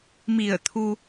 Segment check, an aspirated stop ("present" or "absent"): present